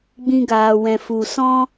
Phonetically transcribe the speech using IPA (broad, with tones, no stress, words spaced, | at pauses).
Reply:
ɡ͡bĩ˧ɡaː˨wɛ̃˨ fu˨sɔ̃˦